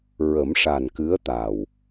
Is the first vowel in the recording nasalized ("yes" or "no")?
no